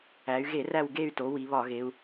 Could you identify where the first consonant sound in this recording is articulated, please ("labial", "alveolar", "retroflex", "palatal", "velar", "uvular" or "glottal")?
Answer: velar